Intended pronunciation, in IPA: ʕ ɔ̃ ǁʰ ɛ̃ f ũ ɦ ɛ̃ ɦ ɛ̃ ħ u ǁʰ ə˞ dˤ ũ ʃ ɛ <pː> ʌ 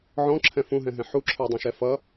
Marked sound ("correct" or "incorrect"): incorrect